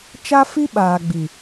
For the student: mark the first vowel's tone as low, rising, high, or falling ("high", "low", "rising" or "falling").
high